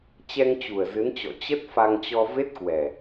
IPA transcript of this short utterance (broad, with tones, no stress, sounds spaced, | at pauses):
t͡ɕ ɛ˧ ŋ t͡ɕ u˨˩ ə̯ z ɨ˨˦ n t͡ɕ ɔ̰˧˨ t͡ɕ ə˦˥ t̚ f a˧ ŋ t͡ɕ ɔ˧ v e˦˥ t̚ k w ɛ˨˩